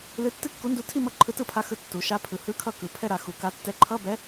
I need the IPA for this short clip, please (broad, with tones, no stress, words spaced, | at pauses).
lɨ˧˥tːɨ˥˧kːu˧˥ndu˧˥ tʰi˥˧ mʌ˥˩ǃʰɯ˧˥tɯ˥˧pʰa˧˥ xɯ˧˥ tːu˩˧ʃa˧˥ pʰɯ˩˧hɯ˧˥˧kʰʌ˥˩ kɯ˩˧pʰɛ˥˧ɾa˩˧xu˩˧ ka˧˥tːɛ˧˥˧ ǃʰʌ˧˥˧bɛ˧˥